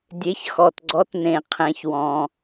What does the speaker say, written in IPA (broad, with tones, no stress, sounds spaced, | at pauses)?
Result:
dʲ e˨˦ ç x ɔ˨ t ɡ͡ǀ ɔ˨˦ t n ẽ˨ qʰ ɛ̃˨ ç w ɔ̃˨